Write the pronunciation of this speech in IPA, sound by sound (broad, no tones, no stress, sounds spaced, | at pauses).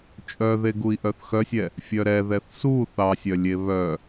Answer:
t͡ʃʼ œ ð e ɡ u i̯ ʔ œ θ x œ sʲ ɛ | fʲ œ ɾ ɛ ð ɛ θ s u θ ɑ sʲ œ lʲ e β œ